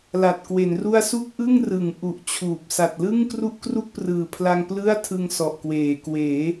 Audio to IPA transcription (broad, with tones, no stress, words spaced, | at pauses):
la˨˩t̚kwe˩˦nru˥˩a̯ su˥˩k̚ʔɯ˥˩ŋ rɯ˩˦ŋ ʔu˨˩ʔt͡ɕʰuː˨˩p̚ sa˨˩t̚lɯ˥˩ŋ kru˥˩ʔkru˥˩k̚prɯː˨˩pʰla˧ŋ plɯ˥˩a̯ tʰɯ˧ŋ sɔ˨˩ʔkweː˩˦ kweː˩˦